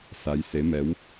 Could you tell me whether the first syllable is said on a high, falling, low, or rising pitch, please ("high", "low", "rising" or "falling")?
rising